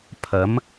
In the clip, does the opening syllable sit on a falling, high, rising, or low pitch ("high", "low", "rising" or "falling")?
rising